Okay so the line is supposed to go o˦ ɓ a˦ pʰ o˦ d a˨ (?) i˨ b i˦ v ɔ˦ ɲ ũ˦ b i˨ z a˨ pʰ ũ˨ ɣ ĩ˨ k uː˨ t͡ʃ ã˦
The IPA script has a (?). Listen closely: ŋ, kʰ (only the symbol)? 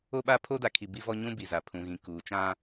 kʰ